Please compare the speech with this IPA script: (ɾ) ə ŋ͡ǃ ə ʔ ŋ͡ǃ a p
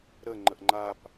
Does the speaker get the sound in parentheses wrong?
no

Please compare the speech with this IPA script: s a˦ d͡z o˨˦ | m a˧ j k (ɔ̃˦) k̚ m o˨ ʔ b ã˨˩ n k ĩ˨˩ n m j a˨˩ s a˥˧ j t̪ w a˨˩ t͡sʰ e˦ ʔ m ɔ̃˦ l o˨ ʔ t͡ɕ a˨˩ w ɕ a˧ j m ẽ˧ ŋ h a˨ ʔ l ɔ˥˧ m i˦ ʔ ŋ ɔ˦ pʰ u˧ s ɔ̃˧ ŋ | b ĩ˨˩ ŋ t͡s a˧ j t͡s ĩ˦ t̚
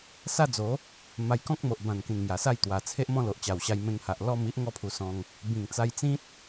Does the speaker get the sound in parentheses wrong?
no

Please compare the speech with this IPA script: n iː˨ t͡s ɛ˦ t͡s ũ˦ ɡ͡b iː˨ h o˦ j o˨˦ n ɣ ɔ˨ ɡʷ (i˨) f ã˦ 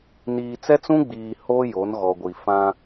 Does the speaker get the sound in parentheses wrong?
no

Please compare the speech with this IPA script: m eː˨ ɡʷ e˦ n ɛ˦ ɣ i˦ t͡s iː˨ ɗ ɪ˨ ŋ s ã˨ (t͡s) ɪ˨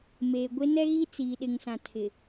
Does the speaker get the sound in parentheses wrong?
yes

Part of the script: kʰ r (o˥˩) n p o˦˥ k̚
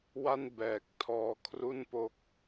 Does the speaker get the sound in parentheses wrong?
yes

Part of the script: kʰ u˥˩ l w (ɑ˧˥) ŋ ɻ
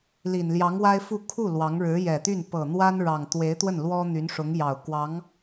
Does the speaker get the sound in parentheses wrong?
no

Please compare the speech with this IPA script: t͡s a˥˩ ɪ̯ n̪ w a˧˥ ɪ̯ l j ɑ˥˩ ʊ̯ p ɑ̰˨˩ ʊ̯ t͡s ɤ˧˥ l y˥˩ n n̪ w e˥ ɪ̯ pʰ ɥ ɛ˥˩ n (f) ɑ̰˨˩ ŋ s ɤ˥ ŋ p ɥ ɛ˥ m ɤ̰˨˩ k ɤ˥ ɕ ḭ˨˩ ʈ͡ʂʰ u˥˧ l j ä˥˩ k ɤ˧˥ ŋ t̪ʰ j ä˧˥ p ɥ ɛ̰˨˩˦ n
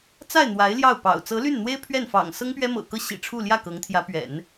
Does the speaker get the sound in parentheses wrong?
no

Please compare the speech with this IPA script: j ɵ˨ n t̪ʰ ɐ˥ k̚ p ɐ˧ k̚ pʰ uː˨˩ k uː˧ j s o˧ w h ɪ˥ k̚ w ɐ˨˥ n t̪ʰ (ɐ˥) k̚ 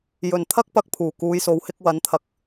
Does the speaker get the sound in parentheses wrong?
yes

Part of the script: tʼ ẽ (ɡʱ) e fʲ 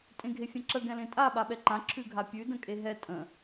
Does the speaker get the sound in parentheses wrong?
no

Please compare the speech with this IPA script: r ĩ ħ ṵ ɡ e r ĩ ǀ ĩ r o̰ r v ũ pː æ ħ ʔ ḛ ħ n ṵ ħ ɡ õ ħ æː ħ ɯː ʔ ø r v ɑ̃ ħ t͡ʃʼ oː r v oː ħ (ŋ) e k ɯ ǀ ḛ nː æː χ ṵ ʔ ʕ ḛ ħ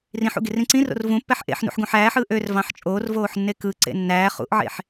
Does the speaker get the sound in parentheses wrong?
yes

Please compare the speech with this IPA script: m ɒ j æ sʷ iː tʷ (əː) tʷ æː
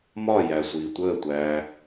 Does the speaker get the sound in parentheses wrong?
no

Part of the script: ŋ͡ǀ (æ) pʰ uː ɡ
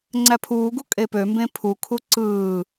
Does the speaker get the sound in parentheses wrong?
no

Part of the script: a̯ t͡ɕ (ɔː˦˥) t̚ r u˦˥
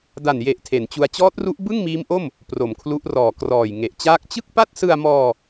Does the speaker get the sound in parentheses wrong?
no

